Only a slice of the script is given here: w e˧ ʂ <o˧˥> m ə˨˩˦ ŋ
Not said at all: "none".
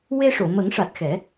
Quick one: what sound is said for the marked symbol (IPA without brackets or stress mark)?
o˨˩˨